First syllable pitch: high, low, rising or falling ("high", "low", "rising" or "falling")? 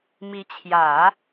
rising